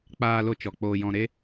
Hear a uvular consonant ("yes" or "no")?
no